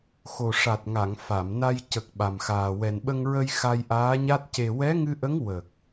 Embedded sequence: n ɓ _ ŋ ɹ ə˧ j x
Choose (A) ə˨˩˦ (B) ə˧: B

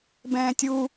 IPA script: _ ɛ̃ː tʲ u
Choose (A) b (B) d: A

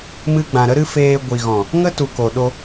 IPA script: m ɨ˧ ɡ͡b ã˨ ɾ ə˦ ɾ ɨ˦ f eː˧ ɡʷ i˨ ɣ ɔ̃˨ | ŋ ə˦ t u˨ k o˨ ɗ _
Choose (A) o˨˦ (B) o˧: B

